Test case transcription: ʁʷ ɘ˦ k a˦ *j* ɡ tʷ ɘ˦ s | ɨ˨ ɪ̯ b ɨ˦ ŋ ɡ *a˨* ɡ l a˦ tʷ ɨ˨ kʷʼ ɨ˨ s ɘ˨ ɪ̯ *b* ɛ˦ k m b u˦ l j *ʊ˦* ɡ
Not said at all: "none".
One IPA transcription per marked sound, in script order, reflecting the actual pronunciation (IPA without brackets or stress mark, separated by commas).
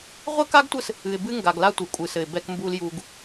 none, a˨, b, u˦